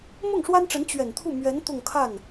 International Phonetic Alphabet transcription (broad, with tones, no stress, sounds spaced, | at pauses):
m ʊ˥˩ ŋ ʂ w a˥ n ʈ͡ʂ ə˧˥ n t͡ɕ ɥ ɛ˨˩ n t̪ʰ u˥˩ m ɥ ɛ˧˥ n t̪ ʊ˥˧ ŋ kʰ a˥˩ n